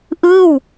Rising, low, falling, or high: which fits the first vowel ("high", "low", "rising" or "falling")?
falling